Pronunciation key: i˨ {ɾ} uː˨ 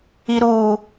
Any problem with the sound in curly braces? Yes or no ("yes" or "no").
no